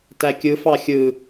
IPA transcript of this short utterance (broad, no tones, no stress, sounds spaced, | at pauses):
t æ kʲ ɯ f ɑ xʲ ɯ